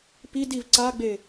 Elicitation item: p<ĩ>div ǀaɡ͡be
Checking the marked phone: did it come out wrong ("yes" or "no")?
yes